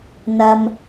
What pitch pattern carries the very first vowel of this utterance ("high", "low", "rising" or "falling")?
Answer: low